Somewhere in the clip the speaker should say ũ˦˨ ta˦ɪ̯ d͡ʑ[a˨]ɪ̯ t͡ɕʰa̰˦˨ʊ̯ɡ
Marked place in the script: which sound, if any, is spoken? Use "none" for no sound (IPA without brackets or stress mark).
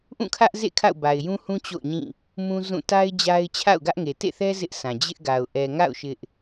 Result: a˦